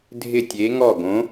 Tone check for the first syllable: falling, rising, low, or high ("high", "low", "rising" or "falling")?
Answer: falling